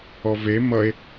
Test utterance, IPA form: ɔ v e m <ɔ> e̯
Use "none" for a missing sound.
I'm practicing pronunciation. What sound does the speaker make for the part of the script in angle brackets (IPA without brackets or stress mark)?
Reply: ʌ